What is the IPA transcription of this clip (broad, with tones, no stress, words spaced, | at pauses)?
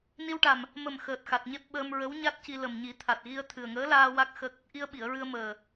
ni˧wʈa˨˩m | mə˨˩m xəː˨˩t̚ xa˨˩t̚ɲe˦˥p̚ ɓəː˧mɹə˧˥w ɲa˦˥t̚ci˧ lə˨˩mɲi˨˩˦t̪ʰa˨˩t̚ɣi˧ə̯ t̪ʰɨ˨˩ə̯ŋəː˧˥laː˧ wa˦˥k̚ xə˦˥k̚ | ʔi˧ə̯ɓi˨˩˨ə̯ɹɨ˧ə̯ məː˨˩